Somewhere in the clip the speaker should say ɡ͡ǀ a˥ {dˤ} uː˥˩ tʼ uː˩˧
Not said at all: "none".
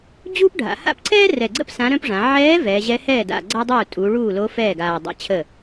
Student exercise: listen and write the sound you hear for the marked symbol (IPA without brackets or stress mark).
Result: dˤ